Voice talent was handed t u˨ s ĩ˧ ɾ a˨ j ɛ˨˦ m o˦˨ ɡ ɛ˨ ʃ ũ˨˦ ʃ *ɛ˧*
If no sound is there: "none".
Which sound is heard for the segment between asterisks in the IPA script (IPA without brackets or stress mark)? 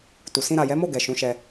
ɛ˧